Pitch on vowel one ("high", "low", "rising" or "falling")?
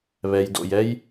low